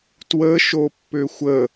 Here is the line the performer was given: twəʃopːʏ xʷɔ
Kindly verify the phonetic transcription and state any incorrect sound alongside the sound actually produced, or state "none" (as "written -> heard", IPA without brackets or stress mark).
ɔ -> ə